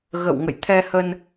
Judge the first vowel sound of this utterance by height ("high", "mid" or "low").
mid